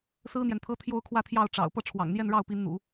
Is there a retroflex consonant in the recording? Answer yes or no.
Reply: yes